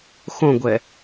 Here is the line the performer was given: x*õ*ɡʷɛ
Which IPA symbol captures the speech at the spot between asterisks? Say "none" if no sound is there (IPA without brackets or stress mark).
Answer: õ